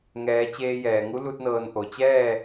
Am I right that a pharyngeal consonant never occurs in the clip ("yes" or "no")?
yes